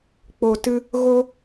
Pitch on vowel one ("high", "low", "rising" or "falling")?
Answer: low